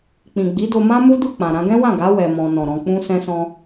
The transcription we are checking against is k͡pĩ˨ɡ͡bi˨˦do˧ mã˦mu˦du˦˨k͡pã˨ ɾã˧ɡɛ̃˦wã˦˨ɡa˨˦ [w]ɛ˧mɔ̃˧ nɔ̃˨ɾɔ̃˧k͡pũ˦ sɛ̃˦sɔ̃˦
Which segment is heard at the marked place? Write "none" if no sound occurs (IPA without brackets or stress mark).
w